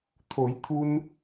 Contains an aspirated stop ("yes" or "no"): yes